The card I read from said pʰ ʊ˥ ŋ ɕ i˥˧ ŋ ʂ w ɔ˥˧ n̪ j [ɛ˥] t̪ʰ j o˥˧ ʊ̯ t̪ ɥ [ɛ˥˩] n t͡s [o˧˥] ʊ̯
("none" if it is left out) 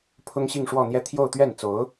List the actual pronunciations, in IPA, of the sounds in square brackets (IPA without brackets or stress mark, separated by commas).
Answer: ɛ˥˧, ɛ˥˩, o˧˥